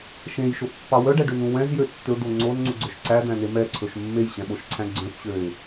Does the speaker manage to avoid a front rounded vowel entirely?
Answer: no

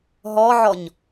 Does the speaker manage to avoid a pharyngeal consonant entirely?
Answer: no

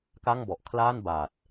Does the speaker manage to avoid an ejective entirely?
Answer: yes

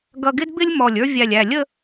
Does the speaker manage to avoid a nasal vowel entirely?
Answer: yes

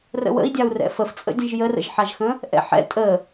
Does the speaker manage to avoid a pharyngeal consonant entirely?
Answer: no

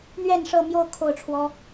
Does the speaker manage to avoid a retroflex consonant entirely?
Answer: no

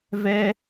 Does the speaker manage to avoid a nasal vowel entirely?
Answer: yes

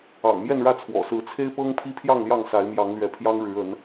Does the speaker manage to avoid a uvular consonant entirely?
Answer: yes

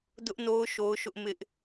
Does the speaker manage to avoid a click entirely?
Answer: yes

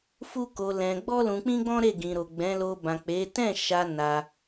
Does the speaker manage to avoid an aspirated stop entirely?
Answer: yes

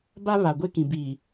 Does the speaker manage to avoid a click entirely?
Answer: yes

